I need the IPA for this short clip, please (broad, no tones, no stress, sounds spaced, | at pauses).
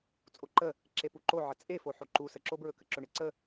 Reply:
t͡sʼ o ǃ ə | ǁ e p u ǃ o ʕ ə t͡sʼ e f o ħ o ǃ u s ə ǁ o b ɹ ɵ k ə ǁ ɵ ɳ e ǀ ə